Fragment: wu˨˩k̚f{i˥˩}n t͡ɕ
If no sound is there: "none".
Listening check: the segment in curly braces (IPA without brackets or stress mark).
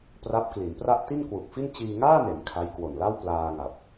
i˥˩